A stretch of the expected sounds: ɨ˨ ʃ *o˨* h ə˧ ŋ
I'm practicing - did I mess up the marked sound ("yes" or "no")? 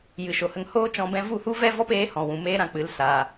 no